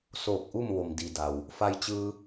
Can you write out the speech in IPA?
s oː˧˩ k̚ ʔ u˥˨ m ʋ o˩ m d i˩ d a˩ w | f a˧ j t͡ɕ ɯː˧

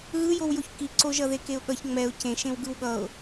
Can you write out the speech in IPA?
ɣ ɯ j o w j o ç k i ǀ o ʒ ʌ ð e k e ʊ̯ ɠ ʌ ç ŋ͡m ɛ ʊ̯ c ẽ ʃ ẽ w ɡ ɯ w ɠ ʌ ʊ̯

